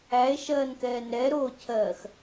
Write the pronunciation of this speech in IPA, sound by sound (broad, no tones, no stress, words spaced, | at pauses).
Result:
æe̯ʃɜːnkɛːn ɾɛɾoːcʰɜːx